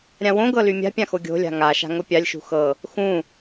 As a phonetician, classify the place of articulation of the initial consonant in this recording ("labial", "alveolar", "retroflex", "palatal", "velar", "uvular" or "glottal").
alveolar